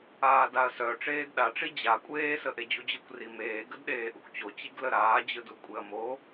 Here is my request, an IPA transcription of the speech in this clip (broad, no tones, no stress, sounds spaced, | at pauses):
aː d a ɐ̯ s œ ʈ͡ʂ eː d ɗ a ʈ͡ʂ i d͡ʑ a kʷʼ eː s ə ʔ e d͡ʑ u d͡ʑ ɯ kʷ r i m eː ɡ ə d ɗ eː ʔ u kʷ t͡ɕ o t͡ɕ i ɡ l ə ɾ aː d͡ʑ ɯ d u kʷʼ e ɐ̯ m o